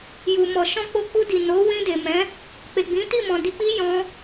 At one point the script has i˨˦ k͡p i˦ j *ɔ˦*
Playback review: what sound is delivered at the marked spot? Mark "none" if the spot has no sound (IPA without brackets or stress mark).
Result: ɔ̃˦